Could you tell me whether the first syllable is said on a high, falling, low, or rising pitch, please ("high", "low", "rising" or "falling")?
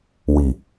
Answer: low